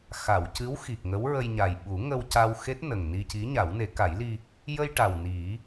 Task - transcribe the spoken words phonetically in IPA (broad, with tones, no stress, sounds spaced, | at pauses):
x a˨˩˨ w c ɨ˧˥ w x i˨˩ k̚ ŋ ə˧˥ w ɹ ə˧ j ɲ a˨˩ j ɓ u˨˩˦ ŋ ə˧ w c a˧ w x e˦˥ t̚ n ə˨˩ ŋ n i˧ c i˧˥ ɲ a˨˩˦ w n e˨˩˦ k a˨˩˦ j l i˧ | j ə˧ j ʈ a˨˩ w n i˨˩˦